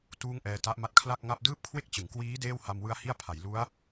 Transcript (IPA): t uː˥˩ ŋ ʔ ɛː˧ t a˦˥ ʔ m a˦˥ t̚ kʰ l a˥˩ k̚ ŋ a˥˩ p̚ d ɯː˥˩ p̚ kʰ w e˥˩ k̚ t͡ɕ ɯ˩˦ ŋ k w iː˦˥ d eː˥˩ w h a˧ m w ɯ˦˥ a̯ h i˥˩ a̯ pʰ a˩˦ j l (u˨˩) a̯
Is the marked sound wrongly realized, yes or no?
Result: yes